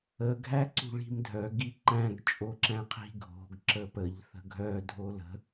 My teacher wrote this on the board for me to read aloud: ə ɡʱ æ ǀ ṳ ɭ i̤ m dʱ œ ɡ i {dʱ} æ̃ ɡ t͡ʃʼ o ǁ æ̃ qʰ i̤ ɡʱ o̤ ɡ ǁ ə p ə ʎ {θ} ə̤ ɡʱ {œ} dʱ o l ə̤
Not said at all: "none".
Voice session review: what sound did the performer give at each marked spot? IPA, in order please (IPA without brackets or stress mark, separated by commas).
ǃ, θ, œ